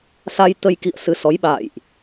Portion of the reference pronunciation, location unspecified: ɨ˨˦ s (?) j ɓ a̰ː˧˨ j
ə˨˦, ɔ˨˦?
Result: ɔ˨˦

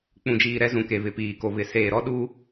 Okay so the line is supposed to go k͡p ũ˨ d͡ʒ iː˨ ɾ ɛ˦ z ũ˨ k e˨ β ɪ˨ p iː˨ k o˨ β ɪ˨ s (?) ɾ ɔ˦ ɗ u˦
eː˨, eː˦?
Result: eː˨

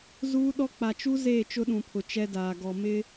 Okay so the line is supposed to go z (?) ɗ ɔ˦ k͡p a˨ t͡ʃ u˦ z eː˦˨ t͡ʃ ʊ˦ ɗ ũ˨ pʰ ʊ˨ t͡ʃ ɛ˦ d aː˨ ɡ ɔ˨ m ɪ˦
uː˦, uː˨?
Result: uː˦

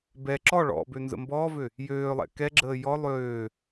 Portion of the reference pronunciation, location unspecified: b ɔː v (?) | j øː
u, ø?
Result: ø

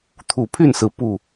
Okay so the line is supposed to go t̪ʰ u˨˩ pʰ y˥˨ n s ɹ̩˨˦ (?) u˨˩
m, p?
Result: p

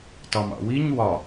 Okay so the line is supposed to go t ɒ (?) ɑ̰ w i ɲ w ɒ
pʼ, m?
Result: m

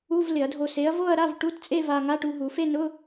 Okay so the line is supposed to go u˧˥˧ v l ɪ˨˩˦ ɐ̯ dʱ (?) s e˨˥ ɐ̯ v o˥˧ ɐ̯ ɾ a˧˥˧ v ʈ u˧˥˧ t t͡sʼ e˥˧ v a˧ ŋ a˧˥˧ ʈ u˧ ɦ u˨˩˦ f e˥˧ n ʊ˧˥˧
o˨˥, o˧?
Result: o˧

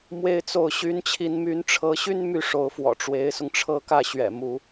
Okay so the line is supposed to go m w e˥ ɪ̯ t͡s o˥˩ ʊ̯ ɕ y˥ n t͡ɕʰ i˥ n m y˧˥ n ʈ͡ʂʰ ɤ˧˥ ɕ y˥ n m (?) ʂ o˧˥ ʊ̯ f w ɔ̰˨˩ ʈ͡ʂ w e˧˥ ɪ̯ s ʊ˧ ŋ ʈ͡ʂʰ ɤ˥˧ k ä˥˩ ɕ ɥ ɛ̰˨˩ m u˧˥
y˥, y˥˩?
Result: y˥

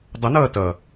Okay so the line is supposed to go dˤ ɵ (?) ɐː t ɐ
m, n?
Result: n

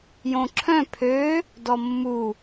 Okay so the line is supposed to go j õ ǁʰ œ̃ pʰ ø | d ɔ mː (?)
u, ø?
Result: u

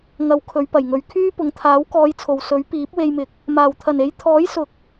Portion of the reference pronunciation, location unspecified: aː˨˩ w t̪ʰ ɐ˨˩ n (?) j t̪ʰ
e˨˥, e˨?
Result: e˨˥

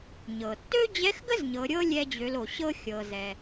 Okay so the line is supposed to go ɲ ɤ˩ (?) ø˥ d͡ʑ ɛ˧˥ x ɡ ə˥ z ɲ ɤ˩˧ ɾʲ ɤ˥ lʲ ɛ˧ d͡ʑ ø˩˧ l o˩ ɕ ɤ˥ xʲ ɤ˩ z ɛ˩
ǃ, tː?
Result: tː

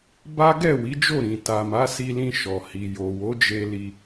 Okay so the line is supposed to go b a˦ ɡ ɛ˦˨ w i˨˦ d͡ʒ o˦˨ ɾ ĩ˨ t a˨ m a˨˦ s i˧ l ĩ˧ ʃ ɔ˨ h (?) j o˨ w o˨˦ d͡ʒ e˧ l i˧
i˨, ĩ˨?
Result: i˨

